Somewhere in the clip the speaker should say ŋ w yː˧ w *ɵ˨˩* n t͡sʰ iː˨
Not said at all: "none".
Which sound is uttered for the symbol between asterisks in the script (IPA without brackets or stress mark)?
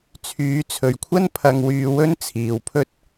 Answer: ɵ˥